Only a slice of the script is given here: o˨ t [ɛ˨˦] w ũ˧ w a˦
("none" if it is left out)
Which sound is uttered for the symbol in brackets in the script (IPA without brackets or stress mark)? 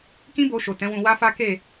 ɛ̃˨˦